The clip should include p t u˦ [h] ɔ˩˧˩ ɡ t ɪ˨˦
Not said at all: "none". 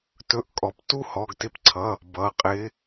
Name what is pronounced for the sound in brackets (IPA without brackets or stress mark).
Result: h